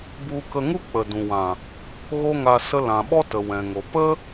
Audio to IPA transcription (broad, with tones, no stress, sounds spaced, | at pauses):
b u˧ k ə˧ ŋ u˦ k͡p ə˨ d ũ˨ w ã˨ | ɣ o˦ ŋ a˧ s ə˧ l ã˨ ɓ ɔ˦ t ə˨ w ɛ̃˨ ŋ o˨ p ə˦